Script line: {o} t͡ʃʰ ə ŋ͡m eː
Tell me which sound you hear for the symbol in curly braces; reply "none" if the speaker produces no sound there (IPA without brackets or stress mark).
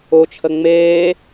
o